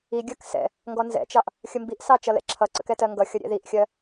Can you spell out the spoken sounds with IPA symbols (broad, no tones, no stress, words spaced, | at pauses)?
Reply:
iɡʲɜk sɛ̰ | ŋɡɔnzɛ̰t͡ʃɑʔ | xʲəmbiʔsɑ t͡ʃʌlɛ̰ǁʰʌǀə̰k ɛtɜŋɡʌxʲʌ ɾʲɛ̰ðiʔxʲɜ